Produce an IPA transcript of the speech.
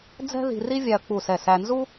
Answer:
d͡z ɛ̤˥ ð i̤˧ r i˥ vʲ æ˧ ɐ̯ k͡p u˧˩ s ɛ˧˩ s æ˧ n z u˥

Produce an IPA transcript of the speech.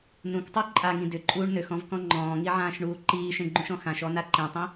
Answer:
n ũ k tˤ u ǃʼ a ŋ ĩ d ʏ ǃʼ uː ɳ n ø x ɔ̃ v k ɔ̃ ŋ͡ǃ ɔ̃ː ŋ i ʕ ãː ʃ ɳ uː ǃ iː ʃ ẽ ɡ͡ǃ ũ ʃ ɔ̃ x ã ʃ ɔ n a ǃ ẽ tˤ ĩ

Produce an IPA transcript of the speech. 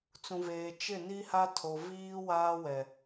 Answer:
t͡s ũ˨ v eː˨ t͡ʃ ɪ˦˨ n i˦ h a˦ tʰ o˨ v iː˦ w aː˦ w ɛ˨

